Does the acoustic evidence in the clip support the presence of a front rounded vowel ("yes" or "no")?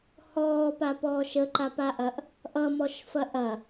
no